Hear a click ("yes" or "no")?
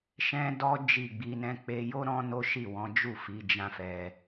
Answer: no